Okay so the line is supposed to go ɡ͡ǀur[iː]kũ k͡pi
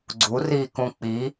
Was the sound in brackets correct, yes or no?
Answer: yes